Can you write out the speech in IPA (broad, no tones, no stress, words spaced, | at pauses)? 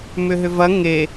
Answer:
mʏɦʏvɐ ŋe